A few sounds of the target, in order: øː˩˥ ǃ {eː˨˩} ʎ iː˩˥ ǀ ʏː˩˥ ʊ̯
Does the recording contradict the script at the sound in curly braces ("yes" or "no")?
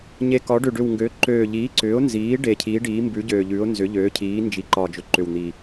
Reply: yes